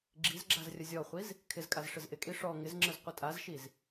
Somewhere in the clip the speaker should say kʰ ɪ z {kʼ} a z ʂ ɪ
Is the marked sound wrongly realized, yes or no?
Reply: no